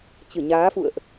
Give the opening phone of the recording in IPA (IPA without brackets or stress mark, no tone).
t͡ɕ